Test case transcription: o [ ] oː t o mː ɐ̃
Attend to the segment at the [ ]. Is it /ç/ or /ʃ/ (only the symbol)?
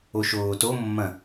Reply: ʃ